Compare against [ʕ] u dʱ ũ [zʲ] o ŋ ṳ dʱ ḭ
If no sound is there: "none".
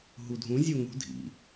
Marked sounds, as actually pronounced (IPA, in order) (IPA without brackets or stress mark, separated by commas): ɦ, zʲ